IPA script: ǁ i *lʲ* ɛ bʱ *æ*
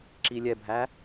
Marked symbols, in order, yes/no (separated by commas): yes, yes